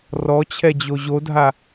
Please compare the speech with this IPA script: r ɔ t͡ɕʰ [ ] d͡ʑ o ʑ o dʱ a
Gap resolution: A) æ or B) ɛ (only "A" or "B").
B